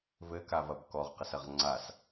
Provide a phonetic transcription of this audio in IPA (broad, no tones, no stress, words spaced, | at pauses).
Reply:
vɘkavɐb kɔʁqɐsɐʁ ŋ͡ǀas